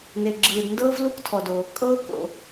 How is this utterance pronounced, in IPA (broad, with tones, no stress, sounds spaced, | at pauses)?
n e˩ ɡ͡ǁ ɯː˩ d n d ɤː˥ v l u˥ k tʰ ɔ˩ d o˩ | kʼ ɤː˥ k o̰˩